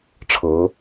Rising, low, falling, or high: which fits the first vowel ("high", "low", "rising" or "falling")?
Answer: rising